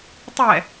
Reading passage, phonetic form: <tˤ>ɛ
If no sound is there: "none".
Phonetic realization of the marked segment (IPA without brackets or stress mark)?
tˤ